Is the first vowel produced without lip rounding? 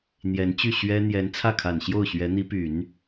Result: yes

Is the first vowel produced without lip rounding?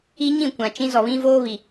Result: yes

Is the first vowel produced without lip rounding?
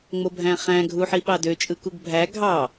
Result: no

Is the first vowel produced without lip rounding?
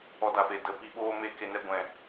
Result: no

